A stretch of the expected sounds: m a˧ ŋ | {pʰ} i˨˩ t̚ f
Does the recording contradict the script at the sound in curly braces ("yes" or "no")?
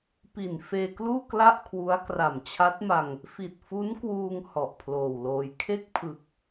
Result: yes